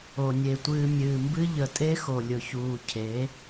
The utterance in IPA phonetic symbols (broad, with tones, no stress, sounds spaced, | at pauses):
o˨ nʲ e˨ tʷ ɨː˨ mʲ ɨː˨ m b ɨ˦ ʎ ə˨ tʼ e˦ x o˨ lʲ ʊ˨ ç uː˨ cʰ e˨˦